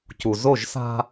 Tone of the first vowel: low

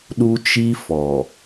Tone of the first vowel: high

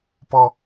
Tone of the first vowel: high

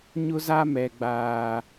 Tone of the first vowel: high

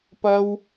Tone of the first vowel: high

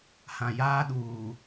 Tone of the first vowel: low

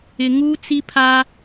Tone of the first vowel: low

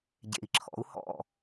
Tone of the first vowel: low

